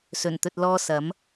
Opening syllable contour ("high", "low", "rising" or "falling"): low